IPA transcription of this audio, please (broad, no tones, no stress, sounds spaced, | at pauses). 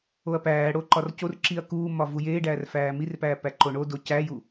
o ɐ̯ p æː ɽ o ǃ ɒ r c o r ǁ i ɐ̯ k uː m ɒ v u j eː ɖ æː r f æː m i r p æː p æ ǃ o ɳ o d o c æ j u